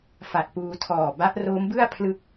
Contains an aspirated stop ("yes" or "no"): yes